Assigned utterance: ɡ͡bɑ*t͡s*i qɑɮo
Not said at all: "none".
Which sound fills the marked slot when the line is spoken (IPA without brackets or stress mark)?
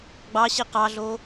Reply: ɕ